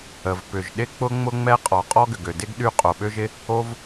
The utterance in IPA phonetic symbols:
ə˩ v p ʏ˩ ʒ ɗ ɪ˥ k͡p ʊ˥ ŋ͡m ʊ˥ ŋ͡m ɛ˥ qʼ ɔ˩ qʼ ɔ˥ ɡ ʏ˩ ɡ ø˩ d ɪ˥ ɡ ɗ y˥ qʼ o˩ ɓ ø˥ ʒ ɪ˥ | o˥ v

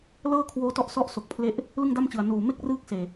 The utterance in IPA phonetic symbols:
l ɤː˥˩ kʰ w oː˦˥ t ɔ˦˥ ʔ s ɔ˦˥ ʔ s o˨˩ k̚ pʰ l e˥˩ ʔ | l ɯ˥˩ ŋ d a˥˩ m t͡ɕ ɯ˨˩ a̯ n uː˨˩ m e˥˩ k̚ r ɯː˥˩ k̚ s eː˨˩

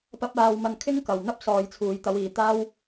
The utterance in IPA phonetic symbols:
p ɐ˥ p̚ aː˧ w m ɐ˧ n kʰ ɪ˥ ŋ k ɐ˨ w n̪ ɐ˥ p̚ s ɔː˨˧ j t͡sʰ uː˨ j t̪ ɐ˨˧ w iː˨ t̪ aː˥ w

